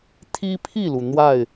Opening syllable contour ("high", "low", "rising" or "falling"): high